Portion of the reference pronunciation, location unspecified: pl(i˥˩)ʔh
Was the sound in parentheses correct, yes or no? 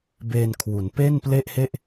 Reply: no